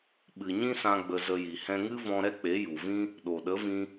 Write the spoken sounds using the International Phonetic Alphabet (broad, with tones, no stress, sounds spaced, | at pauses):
ɓ ɨ˨ ɲ ĩ˦ s ã˧ ɡ͡b ə˧ z ə˧ j i˨ h ɛ̃˧ ŋ ɨ˦ v ɔ̃˧ ɾ ɛ˦ k͡p e˨˦ j u˨ v ĩ˦ | ɗ o˨ ɗ ə˨˦ v ĩ˧